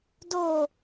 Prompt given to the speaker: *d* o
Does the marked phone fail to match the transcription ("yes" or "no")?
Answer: no